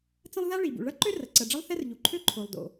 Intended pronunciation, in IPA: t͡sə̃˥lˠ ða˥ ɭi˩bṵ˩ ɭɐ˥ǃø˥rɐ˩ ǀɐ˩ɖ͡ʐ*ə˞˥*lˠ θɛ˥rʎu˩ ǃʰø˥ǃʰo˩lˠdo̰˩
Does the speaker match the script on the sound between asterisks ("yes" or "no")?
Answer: no